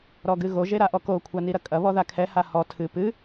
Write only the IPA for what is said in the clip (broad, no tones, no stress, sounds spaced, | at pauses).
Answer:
ɾ ɔ ɡ ɨ ɣ o ʒ e ɾ a ʔ ɔ k o kʷʰ a n i ɾ ɐ kʼ ɐ β ɔ ð a kʰ ɛ h a h ɔ tʰ ɨ p ɨ